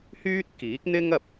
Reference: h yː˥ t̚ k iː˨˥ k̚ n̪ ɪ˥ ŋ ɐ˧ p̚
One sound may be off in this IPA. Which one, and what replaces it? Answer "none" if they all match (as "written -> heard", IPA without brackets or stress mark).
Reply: none